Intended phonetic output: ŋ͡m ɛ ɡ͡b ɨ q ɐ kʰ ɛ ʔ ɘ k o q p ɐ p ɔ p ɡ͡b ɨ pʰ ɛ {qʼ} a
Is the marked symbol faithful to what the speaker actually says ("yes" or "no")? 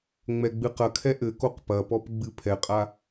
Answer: yes